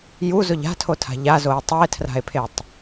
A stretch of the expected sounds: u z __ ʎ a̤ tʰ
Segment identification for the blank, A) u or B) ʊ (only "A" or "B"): B